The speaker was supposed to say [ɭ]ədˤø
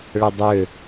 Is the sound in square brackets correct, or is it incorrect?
correct